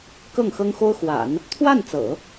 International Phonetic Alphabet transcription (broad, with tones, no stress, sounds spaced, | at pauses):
k ɤ˥˩ ŋ x ɤ˥ ŋ x o˥ ʊ̯ x w a̰˨˩˦ n | t̪ʰ w a˥˩ n t͡s ɤ̰˨˩˦